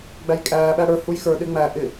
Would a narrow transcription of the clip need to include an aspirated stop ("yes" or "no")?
no